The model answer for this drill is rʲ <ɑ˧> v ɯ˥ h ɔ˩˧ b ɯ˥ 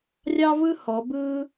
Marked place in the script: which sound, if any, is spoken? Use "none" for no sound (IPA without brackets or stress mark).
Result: ɑ˥